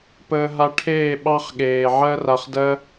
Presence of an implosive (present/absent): present